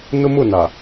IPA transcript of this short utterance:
n ʊ˦ m ʊ˦˨ n a˨

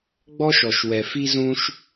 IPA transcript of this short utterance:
ɡ͡b ɔ˥ ʃ ɔ˩ ʃ w ɛ˩ f i˥ z ũ˥ ʃ

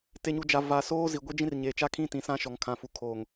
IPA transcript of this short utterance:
t e˨ ɲ u˨ d͡ʒ a˨ v a˨ s oː˦ z i˨ ɡʷ e˦ d͡ʒ ĩ˦ r ɲ eː˨ t͡ʃ a˦ kʰ ĩ˦ t ĩ˨ s ã˦ ʃ ɔ˨ ŋ kʰ ã˨ f u˨ kʰ oː˨ ŋ

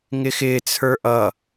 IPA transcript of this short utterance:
ŋ ɪ x ɪː t͡sʰ ə˞ ʔ ʌ

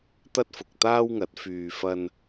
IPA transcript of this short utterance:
t̪ ɐ˥ t̚ f ʊ˨ k̚ t̪ aː˥ w ŋ ɐ˨˥ t̚ f yː˨ f ɐ˧ n

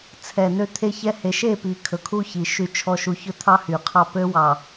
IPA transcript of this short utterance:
t͡sʰ ɛ˨ n ø˦ t̪ʰ e˦ ç ɛ˦ h e˨ ʃ e˦˨ p i˨ kʰ ɵ˨ kʰ u˦ ç i˨ ʃ y˨ t͡ʃʰ ɔ˨ ʃ u˨ ç ɵ˦ t̪ʰ ɑ˦ h y˨ qʰ ɑ˦ p ø˦ w ɑ˨

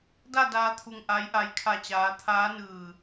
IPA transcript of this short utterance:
d a˥˨ d aː˧ t̪ʰ u˧˩ ŋ ʔ a˧˥ j ʔ a˧˥ j kʰ a˧˩ t͡ɕ aː˩˧ t̪ʰ aː˧˥ n ɯː˧˩

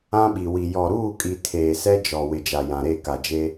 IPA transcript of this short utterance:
ã˦ ɓ i˨ w i˨ j ɔ˨ ɾ uː˦˨ kʼ i˨ tʰ eː˨ s ɛ˦ d͡ʒ ɔ˨ w ɪ˨ d͡ʒ a˨ j ã˨ ɾ e˦˨ k a˨ d͡ʒ e˦

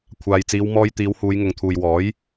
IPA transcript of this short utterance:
kʷʰ aː˨ j t͡s iː˨˧ w m ɔː˧ j t̪ iː˨˧ w h uː˨˧ j ŋ ʊ˨ ŋ t̪ʰ uː˨ j w ɔː˨˥ j

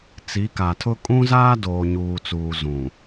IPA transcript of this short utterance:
t͡s i˨˦ k a˨ tʰ ʊ˦ kʼ ũ˦ z aː˦ d oː˨ ɲ uː˨ t͡s uː˨ z ũ˨

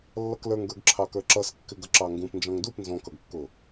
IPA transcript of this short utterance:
lː ʌ k l ə˞ ŋ ɡ ə˞ ɡ ǁʰ ɑ k ə˞ ǁ ʌ s kː ɪ ɡ ʌ ǁ ɑ ŋ ɡ ũ p n d͡ʒ ɔ̃ ŋ d u p n z ɔ̃ k ʌ ɡ kː ʊ

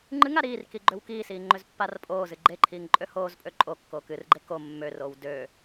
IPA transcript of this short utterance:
ŋ͡ǃ ɨ ŋ a ɾ iː r k i ɡ͡ǃ ø w k iː s iː ŋ͡ǃ ø z pː a r pʼ oː z ɨ ɡ͡ǃ e ǃʰ iː ŋ ǃʼ ø h oː z pʼ ø ǃʼ o kː oː k ɨ r ɡ͡ǃ e k o mː ø r oː w d øː

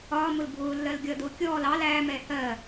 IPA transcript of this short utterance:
ɒː m ʊ l bʱ ʊː lː ɜ l ɡʲ ʌ d ʊː kʲ ɔː l ɑ l æː m ɛː h ɜ

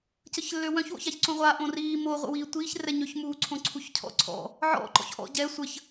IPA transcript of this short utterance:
c ə ç lː ø w œ̃ ç w o̰ ç a ç ǀ õ ʁʷ a ʔ õ r iː m o ʁʷ ə̰ w iː tʷ iː ç r ɛ ɲ ø ç m uː ǀʰ õ ǀʰ u ç cʰ ɔ̰ ǀʰ ɔ̰ | ʕ ɔ̰ ǃ ɔ̰ ç ʔ ɔ̰ ɟ ɛ sʷ ə ç

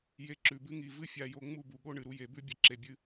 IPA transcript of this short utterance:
j e˧ ǁ ʉ˨ b ɨ˦ ŋ i˧ v ɨ˦ fʲ a˧ j o˧ ŋ͡m u˦˨ b u˨ ɠ o˦ ɳ ɨ˨ ɾ u˦ j e˨˦ b ʉ˦ bʲ ɐ˨ ǁ e˨ bʲ ɨ˧

